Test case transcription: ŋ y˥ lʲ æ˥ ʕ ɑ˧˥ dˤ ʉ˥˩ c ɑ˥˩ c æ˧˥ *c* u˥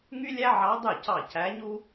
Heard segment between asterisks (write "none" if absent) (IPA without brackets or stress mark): ɲ